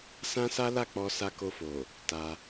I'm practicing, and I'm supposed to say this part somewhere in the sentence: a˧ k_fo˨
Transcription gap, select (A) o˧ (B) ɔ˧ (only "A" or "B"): A